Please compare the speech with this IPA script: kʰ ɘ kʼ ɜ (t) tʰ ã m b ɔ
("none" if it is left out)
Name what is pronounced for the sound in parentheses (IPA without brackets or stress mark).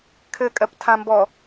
p